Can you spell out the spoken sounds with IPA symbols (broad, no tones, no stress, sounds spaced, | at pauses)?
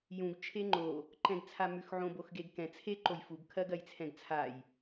j ũ ɡ t͡ʃʰ e ŋ͡ǃ o | ǃ ɛ̃ ɡ t͡sʰ a m ʉ x ʕ õ b o x ɡ e ɡ k ɛ̃ t͡sʰ e ǃ o j f u ɡ kʰ ɜ ɡ ɜ j t͡sʰ ɛ̃ ɡ t͡sʰ a j